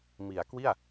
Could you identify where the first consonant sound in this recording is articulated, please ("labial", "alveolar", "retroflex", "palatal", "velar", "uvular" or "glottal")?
labial